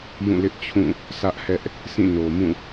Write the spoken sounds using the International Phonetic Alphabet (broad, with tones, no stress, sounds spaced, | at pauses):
j ũ˦˨ l ɪ˦ ʔ t͡ɕʰ ũ˦˨ | s ä˦ ʔ h ɛ˦ ʔ | s ĩ˦˨ n o˨ m ũ˦˨